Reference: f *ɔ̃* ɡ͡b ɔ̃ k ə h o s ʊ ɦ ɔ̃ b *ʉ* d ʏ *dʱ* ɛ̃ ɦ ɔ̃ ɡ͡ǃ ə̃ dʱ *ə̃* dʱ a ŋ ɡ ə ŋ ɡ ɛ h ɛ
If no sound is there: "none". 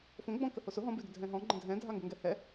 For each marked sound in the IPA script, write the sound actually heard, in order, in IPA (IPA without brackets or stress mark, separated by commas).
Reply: õ, ʉ, dʱ, ɛ̃